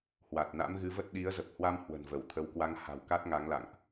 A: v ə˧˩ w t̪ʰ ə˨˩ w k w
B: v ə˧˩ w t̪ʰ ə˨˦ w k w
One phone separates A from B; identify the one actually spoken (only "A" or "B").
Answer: B